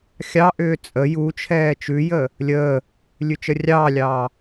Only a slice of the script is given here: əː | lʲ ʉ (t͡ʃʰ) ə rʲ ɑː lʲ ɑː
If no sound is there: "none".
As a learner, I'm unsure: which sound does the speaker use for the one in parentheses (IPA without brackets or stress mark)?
t͡ʃ